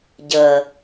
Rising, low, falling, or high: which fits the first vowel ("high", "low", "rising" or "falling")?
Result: low